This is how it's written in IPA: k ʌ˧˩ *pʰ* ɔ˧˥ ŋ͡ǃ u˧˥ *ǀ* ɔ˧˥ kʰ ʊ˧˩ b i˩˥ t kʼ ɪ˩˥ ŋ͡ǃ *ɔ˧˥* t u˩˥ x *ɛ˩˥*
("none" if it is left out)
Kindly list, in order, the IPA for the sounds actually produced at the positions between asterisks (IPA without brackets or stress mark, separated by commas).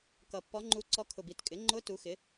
pː, ǀ, ʊ˧˥, ɪ˩˥